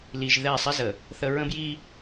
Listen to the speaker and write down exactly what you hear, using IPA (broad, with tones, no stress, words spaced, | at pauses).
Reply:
li˨ʒ ðɛ˦˨ sˤɪ˦zə˨ | θə˦ ɹə̃˦bji˦